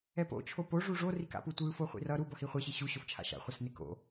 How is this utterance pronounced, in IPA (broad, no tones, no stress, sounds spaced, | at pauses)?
ɛ p o̰ t͡ʃʰ o p o ʐ u ʐ o r i k a̰ p u tʷ ɯ f o χʷ ḭ r ʌ ɾ u b ʌ h i χʷ e ɕ i ɕ u ɕ o f t͡ʃʰ a̰ ʃ a̰ χʷ ʌ s n e k o̰